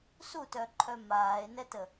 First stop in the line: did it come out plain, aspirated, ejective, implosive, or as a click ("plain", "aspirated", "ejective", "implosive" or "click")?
plain